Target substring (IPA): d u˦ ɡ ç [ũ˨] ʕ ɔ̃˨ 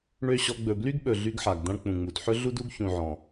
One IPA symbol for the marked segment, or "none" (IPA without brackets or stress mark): ũ˨